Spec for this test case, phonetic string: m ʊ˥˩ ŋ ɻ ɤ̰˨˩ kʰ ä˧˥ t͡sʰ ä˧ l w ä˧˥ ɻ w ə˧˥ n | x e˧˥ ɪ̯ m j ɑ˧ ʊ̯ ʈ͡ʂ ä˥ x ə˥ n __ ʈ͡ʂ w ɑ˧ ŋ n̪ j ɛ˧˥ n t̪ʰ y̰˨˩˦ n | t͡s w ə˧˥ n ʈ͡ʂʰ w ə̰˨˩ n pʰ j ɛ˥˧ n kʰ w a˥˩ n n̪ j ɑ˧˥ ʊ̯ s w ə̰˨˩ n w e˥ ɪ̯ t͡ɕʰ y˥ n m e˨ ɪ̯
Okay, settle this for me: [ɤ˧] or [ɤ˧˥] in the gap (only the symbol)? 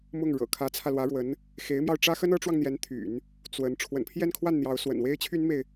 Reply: ɤ˧˥